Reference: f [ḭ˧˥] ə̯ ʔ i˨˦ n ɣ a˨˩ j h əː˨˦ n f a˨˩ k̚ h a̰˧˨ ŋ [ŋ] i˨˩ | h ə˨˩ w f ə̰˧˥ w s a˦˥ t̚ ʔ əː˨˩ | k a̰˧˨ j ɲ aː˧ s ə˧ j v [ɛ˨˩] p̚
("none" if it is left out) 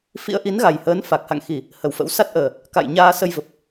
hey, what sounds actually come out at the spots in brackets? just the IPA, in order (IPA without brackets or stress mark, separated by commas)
ḭ˧˥, x, ə˨˩